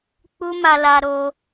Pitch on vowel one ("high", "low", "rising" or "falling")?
high